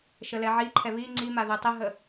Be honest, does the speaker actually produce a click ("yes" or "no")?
yes